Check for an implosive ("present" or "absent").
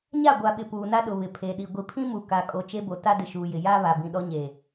present